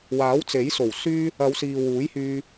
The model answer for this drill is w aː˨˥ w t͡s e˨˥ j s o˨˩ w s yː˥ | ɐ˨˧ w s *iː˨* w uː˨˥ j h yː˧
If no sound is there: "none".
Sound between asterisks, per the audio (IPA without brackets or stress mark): iː˨